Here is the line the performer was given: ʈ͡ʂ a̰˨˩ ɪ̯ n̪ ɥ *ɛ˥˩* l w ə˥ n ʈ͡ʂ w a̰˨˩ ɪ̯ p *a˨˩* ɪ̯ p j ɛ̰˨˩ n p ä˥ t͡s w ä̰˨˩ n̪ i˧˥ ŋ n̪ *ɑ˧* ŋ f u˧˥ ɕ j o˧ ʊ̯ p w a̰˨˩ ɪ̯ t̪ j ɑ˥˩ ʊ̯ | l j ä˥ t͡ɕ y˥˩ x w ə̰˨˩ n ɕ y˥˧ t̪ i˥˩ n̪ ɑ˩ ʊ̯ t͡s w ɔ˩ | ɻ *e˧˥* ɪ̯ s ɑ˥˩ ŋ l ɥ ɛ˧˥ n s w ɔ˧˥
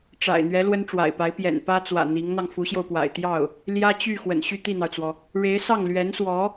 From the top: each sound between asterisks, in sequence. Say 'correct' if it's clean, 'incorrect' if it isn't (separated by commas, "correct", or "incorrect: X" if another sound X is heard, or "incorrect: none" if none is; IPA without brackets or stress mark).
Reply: incorrect: ɛ˧˥, incorrect: a˧˥, correct, correct